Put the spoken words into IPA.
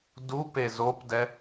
dupe zopdɛ

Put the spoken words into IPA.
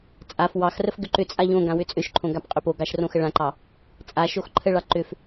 t͡sʼaf wɑxrəf ɡʏǃʏt͡sʼaʎ õɡã wʏt͡sʼʏʃǃʰõ ɡapqʼʏpoɡɑʃ rõxəɭãǃɑ | t͡sʼaʃox ǃʰəɭɑ ǃʏf

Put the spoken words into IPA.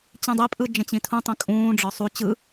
t͡ɕĩdˤipʼɯ d͡ʒə̃t͡ɕĩtʰũtˤĩ kʼũːɖ͡ʐɒ sˤu t͡ɕɯ

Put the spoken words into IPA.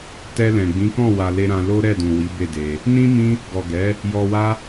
tɛ˧lɛ̃˨ ɡ͡bĩ˨˦kɔ̃˦˨wa˨le˧ ɾã˧lo˦ ɾɛ˦˨dũ˨wi˨˦ be˦˨de˧ | nĩ˦ mĩ˦ | ɡɔ˨ɡɛ˨˦ | jɔ˧wa˦

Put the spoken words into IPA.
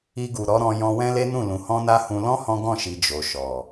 i˧ɡu˨ɾɔ˨˦ɾɔ̃˧ jɔ̃˧wɛ̃˦le˦nũ˦˨ lũ˨hɔ̃˧na˧ hũ˧ lɔ̃˦ hɔ̃˦ɡɔ̃˦˨ʃi˨ d͡ʒo˨ ʃɔ˨

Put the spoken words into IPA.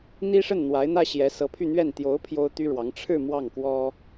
n̪i˥ʂə˥˩n n̪wa˧˥ɪ̯n̪ä˥ ɕjɛ˧˥sɤ˧˥ pʰy˥˧n̪ɥɛ˥˩n t̪jo˧˥ʊ̯ pʰjo˥ʊ̯t̪y˥ɻwɑ˧˥ŋ ʈ͡ʂʰɻ̩˥˧ mwɑ˥˩ŋkwɔ˥

